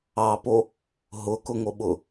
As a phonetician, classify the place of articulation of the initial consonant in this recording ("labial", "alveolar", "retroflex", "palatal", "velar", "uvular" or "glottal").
labial